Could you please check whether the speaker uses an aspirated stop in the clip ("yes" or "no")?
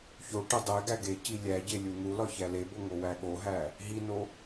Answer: no